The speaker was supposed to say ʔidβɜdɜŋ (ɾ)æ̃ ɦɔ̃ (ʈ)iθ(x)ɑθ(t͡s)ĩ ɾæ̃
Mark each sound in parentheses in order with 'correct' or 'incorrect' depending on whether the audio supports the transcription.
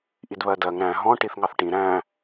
correct, correct, incorrect: ŋ, incorrect: ʈ

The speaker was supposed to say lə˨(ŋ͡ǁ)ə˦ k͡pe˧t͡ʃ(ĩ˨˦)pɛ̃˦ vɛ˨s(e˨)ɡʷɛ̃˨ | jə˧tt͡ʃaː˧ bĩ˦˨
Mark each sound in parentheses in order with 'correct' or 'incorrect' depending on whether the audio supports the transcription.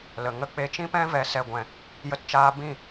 incorrect: ŋ, incorrect: ĩ˦, incorrect: ɛ˨

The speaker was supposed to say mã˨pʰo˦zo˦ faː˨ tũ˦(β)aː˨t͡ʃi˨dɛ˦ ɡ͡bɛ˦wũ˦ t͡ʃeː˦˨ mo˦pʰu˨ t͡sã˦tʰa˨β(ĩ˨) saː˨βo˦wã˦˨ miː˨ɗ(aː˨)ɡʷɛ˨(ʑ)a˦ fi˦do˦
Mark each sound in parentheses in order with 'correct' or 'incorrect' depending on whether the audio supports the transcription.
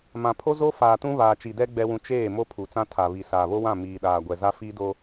correct, incorrect: i˨, correct, incorrect: z

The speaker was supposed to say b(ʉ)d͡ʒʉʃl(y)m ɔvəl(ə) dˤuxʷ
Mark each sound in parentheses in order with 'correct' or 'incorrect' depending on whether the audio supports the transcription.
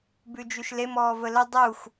correct, incorrect: e, correct

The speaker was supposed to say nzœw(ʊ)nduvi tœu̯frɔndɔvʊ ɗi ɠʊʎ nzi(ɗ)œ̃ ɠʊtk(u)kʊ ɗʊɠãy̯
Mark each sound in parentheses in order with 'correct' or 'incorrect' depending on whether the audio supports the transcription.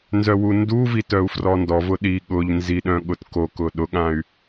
incorrect: u, correct, incorrect: o

